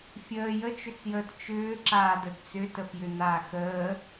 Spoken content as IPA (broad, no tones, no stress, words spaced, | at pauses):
fʲəː jət͡ʃʏt͡sjəːt t͡ʃʏːǁaːd ədt͡sʏtəfjʏ n̪aːxəː